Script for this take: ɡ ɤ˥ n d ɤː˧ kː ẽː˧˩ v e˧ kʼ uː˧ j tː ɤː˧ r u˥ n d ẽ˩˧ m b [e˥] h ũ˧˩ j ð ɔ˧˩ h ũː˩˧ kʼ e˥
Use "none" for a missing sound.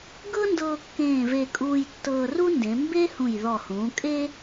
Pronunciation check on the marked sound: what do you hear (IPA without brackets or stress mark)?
e˥